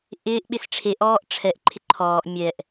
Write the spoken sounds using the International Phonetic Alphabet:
ʔ ɪː ʔ ɓ ɪ s ʈ͡ʂʰ e ʔ ɔː ʔ ʈ͡ʂʰ ɛ ʔ ǃʰ ɪ ǃʰ ɔː ʔ mʲ ɛ ʔ

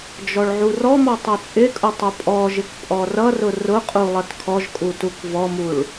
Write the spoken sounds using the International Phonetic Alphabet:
d͡ʒ ɔ ɭ ʕ u r ɔ m ɔ tˤ ʌ t͡sʼ ɪ kʼ ʊ tˤ ʊ pʼ ɔ ʒ ɪ k pʼ ɔ r ʌ r ʊ r ʊ qʼ u lˠ ʌ t kʰ ɔ ʒ kʼ u t u k v ɔ m u ɭ

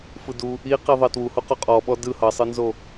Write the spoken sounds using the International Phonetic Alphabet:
f ɯ d u | i q i ðˤ ə t w u h u q o qʼ ɔ ɓ ɔ d ɯ h ʌ sˤ ɯ n z o

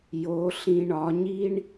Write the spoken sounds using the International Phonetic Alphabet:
j o˨˦ ɬ ĩ˧ ɳ ɒ˨˦ ɲ i˦ ɳ

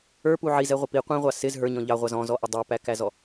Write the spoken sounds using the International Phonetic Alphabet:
ə˞ p u ʕ i z ɛ ʁʷ ɪ p i qʷ ĩ ʁʷ ɑ s ɪ z ɦ ə˞ ɲ ɔ̃ ʎ ɑ ʁʷ ɑ z ɔ̃ z ɔ ʔ ɪ dˤ æ p æ k æ z ɔ

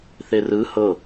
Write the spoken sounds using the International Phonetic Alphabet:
θ e r ɯ h ɤ

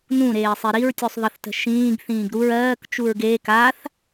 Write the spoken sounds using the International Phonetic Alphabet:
n ũ ɾ eː sˤ e ɾ i ɹ tʲ u sˤ ðˤ ə θ t ə̤ ʃ ĩː ɡ θ ĩː ɡ ɾ u ɹ ɜː k t͡ʃ u ɹ ɡ eː k a θ

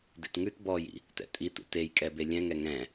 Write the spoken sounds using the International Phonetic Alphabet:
d ḛ t ŋ ʉ t b ɔ j ḭ | t ɛ̰ tʼ i t ṵ t e j kʼ ɛ b e lʲ ɛ̃ ŋ ɛ ŋ ɛ̃

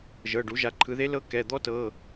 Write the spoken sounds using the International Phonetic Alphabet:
ʒ ɤ˩˧˩ ɖ u˩˧ ʒ a˩˧ ǃʰ ɯ˩˧ ð e˧˥ l ɤ˧˥ k ɛ˩˧˩ d̪ ɔ˥ t ɤ˩˧˩

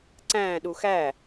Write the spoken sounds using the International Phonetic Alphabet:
ǀ æ̃ ɗ u x æ

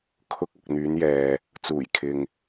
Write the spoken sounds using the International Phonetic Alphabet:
kʰ ʊ˧ k̚ ɐ˨ k̚ n̪ yː˨˧ n j ɛː˨ | t͡s uː˨˩ j kʰ ɪ˨ ŋ

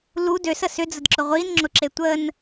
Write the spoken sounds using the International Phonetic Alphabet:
l u d ø s ə s ʏ d͡z ə d ǁ ʊ ʁʷ i n ŋ͡ǁ ʊ ǁ e tʷ ə n

